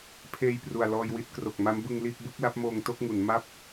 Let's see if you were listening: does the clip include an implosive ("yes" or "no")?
no